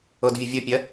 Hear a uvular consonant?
no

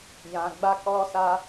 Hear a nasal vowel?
yes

